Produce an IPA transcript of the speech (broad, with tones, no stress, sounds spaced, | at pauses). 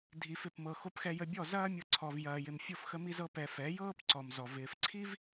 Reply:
dʱ i˧ f ɪ˦˨ p m ɤ˧ x o˧ p x ɛ˧ j ə˧ bʲ ɔ˦˨ z ɐː˦ mʲ ɤ˧ ǀʰ ɔ˧ v j ɐː˧ j ɪ˧ m fʲ o˦ f x ə˦ m i˦ z ɤ˦ p ɛ˧ f ɛ˨˦ j ɤː˦ p ǀ ɔ˨ m z ɔ˨ v ɪː˨ f ǀʰ i˦ v